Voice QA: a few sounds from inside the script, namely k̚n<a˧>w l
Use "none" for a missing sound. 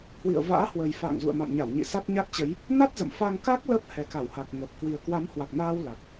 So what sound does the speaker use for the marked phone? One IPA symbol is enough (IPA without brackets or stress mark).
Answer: aː˧